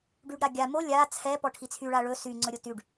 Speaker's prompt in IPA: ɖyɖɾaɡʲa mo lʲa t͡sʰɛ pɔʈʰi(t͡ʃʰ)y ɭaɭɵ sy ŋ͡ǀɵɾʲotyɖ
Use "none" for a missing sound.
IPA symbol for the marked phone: t͡sʰ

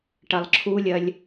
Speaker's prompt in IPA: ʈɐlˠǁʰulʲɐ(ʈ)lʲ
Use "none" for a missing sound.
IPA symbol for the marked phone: none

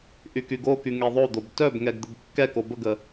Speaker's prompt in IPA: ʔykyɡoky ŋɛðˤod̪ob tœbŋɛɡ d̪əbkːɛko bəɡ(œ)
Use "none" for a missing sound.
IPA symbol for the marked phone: ə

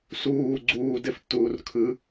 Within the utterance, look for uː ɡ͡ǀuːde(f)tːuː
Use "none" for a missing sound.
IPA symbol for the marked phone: f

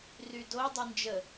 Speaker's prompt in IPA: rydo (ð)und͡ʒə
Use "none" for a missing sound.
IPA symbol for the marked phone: dˤ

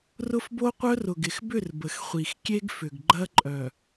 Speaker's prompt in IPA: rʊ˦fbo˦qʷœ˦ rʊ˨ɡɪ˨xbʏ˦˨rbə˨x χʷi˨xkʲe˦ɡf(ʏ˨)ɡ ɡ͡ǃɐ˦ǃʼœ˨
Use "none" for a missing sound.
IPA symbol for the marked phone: ʏ˨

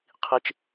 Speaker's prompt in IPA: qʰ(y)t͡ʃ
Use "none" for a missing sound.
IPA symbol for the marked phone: i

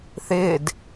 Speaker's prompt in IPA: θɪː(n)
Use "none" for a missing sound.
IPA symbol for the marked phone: d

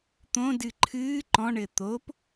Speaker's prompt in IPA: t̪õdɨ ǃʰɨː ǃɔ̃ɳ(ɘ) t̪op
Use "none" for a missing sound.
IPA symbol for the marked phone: ɘ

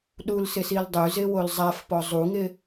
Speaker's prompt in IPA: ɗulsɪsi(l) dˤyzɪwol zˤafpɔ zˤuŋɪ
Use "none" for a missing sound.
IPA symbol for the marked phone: l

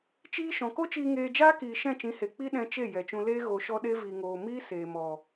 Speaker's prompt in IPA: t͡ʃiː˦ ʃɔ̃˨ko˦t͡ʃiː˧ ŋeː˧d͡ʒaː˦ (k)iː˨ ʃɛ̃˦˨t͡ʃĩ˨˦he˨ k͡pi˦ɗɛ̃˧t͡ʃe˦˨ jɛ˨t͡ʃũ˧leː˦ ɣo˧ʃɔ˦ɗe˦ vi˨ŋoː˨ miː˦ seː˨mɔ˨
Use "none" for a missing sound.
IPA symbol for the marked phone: k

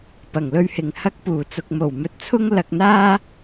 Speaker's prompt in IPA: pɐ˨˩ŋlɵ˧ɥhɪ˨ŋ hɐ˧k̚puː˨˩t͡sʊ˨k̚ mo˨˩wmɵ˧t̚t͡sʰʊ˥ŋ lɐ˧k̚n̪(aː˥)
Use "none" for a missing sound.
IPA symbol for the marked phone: aː˥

